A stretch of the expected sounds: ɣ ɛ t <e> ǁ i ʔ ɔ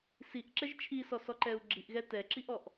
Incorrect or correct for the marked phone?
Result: incorrect: ɛ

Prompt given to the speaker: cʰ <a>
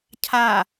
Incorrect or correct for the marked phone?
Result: correct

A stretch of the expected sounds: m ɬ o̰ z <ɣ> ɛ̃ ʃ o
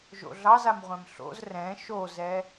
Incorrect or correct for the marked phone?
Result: incorrect: r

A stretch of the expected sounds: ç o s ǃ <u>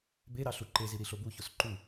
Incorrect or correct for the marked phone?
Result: correct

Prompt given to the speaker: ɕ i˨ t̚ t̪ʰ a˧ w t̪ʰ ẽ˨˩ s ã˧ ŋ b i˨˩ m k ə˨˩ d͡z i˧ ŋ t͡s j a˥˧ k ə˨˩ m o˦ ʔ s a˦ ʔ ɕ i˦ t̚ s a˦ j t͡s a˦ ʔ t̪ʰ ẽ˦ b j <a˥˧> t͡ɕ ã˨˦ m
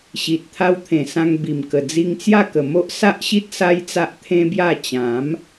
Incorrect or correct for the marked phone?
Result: correct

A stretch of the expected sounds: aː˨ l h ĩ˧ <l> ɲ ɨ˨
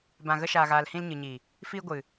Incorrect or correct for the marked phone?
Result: correct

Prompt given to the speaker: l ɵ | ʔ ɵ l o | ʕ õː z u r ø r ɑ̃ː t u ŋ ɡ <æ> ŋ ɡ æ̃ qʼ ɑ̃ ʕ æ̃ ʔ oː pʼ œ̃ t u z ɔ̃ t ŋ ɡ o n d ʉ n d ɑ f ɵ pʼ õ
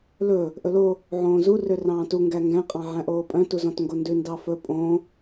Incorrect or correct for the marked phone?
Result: correct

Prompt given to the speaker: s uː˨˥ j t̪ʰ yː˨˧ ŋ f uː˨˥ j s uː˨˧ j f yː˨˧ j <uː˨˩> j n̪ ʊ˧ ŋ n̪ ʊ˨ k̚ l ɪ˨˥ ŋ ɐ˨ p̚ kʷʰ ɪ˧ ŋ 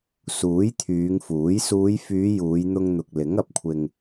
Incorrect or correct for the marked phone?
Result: incorrect: uː˨˧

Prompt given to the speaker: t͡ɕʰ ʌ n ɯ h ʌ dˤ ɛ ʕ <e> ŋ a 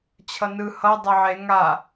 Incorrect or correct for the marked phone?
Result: correct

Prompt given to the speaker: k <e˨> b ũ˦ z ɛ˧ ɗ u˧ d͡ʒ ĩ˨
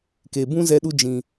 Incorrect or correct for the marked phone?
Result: correct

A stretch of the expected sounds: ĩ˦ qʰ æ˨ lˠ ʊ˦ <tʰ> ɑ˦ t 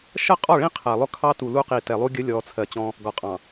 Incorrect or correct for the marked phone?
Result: incorrect: kʰ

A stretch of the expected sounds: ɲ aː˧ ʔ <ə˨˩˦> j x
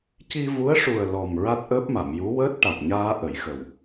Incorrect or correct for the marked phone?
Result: correct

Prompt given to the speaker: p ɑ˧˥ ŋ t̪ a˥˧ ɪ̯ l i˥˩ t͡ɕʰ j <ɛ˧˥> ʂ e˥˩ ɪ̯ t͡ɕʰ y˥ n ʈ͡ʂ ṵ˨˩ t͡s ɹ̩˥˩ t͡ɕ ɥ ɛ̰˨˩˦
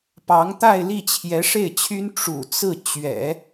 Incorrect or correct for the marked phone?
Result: correct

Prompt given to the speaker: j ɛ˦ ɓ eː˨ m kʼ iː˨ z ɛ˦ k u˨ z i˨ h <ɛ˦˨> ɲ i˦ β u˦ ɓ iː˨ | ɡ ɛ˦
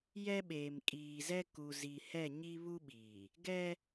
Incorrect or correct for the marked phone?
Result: correct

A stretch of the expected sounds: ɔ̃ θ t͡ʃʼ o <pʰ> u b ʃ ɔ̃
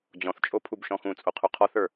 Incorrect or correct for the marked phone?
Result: correct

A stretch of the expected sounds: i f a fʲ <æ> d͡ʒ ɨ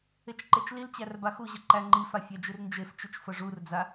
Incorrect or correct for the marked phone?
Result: correct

